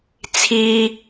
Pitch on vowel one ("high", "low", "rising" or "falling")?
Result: high